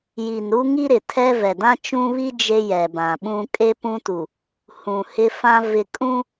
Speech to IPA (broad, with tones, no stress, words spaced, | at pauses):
ji˨nɾu˦ŋi˦ɾɪ˨ tʰɛ˦vɛ˨ dã˦t͡ʃũ˦βi˦ d͡ʒe˦jɛ˨bã˨ɓũ˦ kʼe˦pũ˦tu˨ | hũ˨hɪ˦fã˦ vɪ˨kʼũ˦